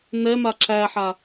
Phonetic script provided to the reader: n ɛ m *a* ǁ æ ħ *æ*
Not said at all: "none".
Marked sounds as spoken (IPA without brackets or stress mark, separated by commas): a, a